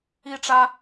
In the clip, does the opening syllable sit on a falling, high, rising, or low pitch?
high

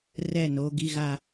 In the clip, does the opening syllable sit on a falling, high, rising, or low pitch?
falling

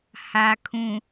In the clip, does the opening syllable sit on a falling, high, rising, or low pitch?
low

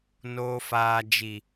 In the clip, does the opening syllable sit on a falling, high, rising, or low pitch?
low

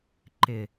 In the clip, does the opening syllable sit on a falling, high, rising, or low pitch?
low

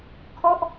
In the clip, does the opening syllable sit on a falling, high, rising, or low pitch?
falling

